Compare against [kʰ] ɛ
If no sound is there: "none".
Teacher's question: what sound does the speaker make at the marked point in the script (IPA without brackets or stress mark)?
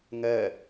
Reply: ŋ